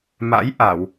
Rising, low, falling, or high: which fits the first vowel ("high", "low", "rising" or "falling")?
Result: rising